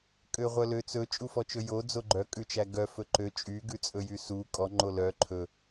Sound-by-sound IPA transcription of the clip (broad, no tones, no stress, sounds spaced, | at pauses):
kʼ ø ʁʷ œ l ø t͡s ɵ t͡ʃʼ u f ɔ t͡ʃ ɵ j o d͡z o ɡ͡ǃ œ kʼ ʉ t͡ʃ æ ɡ œ f ɵ ǃ ø t͡ʃʼ y ɡ ʉ t͡sʼ ɵ j y s u kʼ ɔ ŋ͡ǃ o l œ ǃʰ ɵ